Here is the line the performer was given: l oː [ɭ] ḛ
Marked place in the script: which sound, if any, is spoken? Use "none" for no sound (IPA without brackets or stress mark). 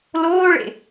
ɭ